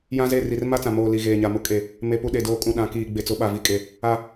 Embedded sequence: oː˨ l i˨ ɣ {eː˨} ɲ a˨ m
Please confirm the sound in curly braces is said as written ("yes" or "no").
yes